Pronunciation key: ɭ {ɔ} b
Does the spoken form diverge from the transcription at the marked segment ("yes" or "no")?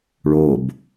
yes